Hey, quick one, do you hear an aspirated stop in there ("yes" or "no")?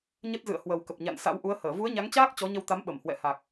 no